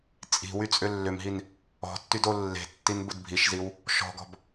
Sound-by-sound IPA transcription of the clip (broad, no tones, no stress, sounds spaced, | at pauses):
t͡sʼ i̤ w y t͡sʼ ʏ lː ʏ m ɦ i n | ɔ̤ tː y d o lː e̤ tː i n b ʊ d bʱ i ʃ z i w | ʃ ɔ̤ ɡ ɔ̤ b